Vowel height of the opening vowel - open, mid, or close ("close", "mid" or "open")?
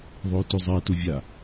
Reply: mid